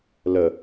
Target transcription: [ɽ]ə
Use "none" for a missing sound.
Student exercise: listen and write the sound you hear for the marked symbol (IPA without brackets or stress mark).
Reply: l